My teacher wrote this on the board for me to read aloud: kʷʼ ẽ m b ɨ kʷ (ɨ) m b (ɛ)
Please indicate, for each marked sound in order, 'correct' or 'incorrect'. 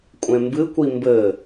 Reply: incorrect: i, incorrect: ɘ

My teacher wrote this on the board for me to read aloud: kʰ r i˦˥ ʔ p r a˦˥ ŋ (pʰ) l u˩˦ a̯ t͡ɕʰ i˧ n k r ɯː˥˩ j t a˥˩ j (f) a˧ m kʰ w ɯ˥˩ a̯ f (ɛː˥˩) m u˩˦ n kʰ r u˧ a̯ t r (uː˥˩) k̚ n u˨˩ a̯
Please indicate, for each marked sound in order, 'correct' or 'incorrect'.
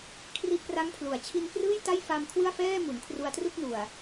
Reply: correct, correct, correct, incorrect: u˥˩

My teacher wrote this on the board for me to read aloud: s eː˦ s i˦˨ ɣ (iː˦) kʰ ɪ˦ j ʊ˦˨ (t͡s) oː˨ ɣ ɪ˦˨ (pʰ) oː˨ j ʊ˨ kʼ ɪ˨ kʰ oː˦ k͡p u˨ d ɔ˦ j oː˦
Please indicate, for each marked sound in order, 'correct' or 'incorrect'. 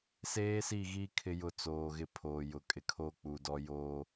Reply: correct, correct, correct

